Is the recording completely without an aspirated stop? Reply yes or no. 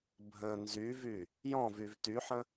yes